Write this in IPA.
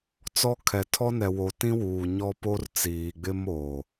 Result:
t͡sɔ˦ kʰɛ˨tʰɔ˦ nɛ˨wo˨ tĩ˦wuː˨ ɲɔ˦po˦rt͡siː˨ɡ͡bɪ˦m oː˨

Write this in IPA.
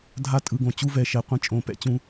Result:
dʱa˧tʼɯ˨ɡõ˨ t͡ɕu˧vɛ˨ʃɛ˨ qʷĩ˧t͡ʃʼõ˨˦pɛ̰˦t͡ɕũ˨˦

